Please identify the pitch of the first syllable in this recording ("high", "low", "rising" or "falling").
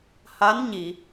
rising